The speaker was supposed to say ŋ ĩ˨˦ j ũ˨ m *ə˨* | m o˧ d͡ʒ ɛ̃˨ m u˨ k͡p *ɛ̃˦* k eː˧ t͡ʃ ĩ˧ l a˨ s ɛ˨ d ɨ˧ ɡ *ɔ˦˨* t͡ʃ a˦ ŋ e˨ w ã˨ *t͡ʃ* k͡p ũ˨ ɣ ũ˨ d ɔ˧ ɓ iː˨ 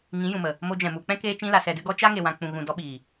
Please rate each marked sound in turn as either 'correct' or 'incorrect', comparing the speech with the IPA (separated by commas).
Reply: correct, correct, incorrect, incorrect